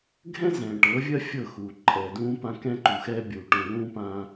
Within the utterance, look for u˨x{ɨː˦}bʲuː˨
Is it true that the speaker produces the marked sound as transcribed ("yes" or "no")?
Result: no